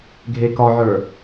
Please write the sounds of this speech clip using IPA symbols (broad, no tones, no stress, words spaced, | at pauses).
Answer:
ɡʱekɒʕə˞